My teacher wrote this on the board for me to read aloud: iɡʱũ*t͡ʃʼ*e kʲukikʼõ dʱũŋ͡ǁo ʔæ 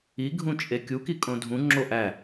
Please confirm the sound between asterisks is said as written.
yes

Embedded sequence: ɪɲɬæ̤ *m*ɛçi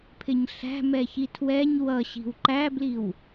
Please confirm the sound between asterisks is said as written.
yes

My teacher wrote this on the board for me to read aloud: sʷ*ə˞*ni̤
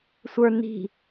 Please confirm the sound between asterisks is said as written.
yes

